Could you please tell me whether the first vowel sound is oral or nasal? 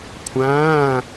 nasal